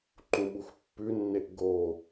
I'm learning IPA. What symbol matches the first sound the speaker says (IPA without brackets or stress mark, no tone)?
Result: ǃ